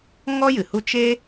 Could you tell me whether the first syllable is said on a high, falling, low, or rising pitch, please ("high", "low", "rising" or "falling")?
high